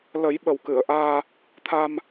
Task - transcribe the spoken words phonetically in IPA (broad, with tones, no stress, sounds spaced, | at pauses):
l ə˨˩˦ j ɓ ə˨˩ w k ɨ˨˩˨ ə̯ ʔ aː˧ | t̪ʰ a˧ m